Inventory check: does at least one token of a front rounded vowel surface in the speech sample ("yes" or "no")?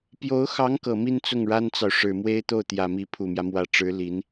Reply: no